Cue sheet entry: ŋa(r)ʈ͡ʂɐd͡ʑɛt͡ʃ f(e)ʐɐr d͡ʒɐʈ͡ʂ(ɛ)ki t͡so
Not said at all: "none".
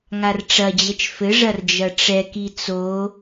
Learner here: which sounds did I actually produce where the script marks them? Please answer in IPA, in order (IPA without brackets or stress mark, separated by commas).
r, ɘ, ɛ